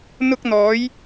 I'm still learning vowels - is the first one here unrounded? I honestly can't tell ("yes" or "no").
no